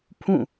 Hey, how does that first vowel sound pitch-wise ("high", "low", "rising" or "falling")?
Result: falling